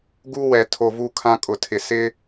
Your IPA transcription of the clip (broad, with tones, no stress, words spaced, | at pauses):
ɡu˦wɛ˨ tʰo˨vu˦˨ kʰã˦kʼʊ˨tʰɪ˨ sɪ˦